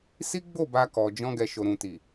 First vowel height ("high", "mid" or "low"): high